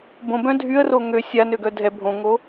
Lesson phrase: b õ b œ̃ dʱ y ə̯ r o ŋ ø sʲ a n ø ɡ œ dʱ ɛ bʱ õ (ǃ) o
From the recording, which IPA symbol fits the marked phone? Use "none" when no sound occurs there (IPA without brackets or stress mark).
ŋ